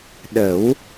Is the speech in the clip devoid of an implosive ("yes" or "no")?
no